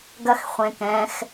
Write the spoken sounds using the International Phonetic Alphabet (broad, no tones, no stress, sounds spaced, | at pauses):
ɡ ɐ x χʷ ẽ k ɛ̃ x